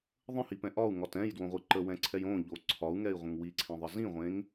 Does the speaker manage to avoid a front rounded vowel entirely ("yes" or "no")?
yes